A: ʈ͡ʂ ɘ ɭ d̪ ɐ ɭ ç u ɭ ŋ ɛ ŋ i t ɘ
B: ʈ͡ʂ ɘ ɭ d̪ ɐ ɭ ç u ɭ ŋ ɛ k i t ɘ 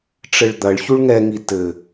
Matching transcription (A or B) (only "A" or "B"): A